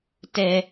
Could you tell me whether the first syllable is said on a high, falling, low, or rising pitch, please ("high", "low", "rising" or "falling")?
high